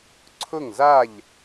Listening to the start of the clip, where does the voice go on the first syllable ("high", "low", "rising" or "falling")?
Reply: falling